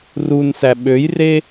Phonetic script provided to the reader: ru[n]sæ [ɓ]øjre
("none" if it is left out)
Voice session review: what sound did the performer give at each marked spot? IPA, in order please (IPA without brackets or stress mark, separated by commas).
n, ɓ